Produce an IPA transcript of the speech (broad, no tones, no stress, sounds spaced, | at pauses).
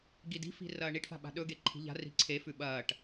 ɡ i d i̤ f i̤ r ɐː ɳ i ʈ f a̤ ɓ a̤ ɗ ɵ ɡ e ǃʰ i̤ ʎ a̤ r i̤ ǀʰ e f ʉ ɓ ɐː ʈ